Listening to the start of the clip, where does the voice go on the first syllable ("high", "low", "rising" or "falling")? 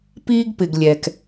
high